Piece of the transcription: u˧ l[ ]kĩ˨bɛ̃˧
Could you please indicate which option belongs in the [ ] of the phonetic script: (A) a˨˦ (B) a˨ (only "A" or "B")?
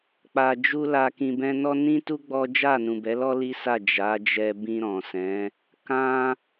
B